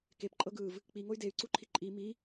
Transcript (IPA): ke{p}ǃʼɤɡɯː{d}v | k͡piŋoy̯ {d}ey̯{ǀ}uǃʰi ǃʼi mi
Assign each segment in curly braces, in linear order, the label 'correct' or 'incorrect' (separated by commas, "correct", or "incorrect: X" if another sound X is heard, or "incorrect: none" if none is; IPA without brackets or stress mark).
correct, incorrect: none, correct, correct